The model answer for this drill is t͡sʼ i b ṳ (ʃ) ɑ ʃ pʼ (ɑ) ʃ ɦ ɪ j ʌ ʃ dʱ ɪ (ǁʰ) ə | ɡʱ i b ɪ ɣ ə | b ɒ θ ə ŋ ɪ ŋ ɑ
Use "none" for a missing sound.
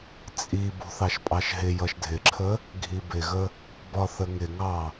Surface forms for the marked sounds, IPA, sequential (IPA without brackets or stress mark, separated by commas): θ, ɑ, ǁʰ